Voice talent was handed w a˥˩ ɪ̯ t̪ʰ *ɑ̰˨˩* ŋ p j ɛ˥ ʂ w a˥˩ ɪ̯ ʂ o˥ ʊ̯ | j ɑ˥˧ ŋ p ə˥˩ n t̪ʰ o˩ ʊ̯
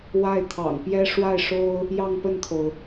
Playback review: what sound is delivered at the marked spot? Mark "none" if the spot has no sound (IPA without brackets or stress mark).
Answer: ɑ̰˨˩